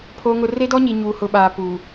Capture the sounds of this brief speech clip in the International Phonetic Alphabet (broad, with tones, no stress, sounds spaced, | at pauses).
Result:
pʰ o˨ ŋ ʊ˨ r e˦ d ɔ˦ ɲ i˨ ɲ uː˨ h ʊ˨ ɓ aː˨ p uː˨